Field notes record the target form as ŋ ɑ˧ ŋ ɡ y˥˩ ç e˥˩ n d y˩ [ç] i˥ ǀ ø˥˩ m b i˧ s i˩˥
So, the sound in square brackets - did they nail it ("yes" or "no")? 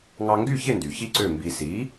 yes